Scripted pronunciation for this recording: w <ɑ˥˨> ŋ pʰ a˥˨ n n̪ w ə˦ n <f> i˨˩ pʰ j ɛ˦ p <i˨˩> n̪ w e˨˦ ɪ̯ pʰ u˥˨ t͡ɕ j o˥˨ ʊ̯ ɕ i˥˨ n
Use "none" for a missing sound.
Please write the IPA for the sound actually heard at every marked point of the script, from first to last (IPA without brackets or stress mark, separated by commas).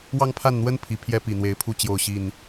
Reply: ɑ˦, pʰ, i˨˩